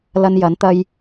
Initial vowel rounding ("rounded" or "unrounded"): unrounded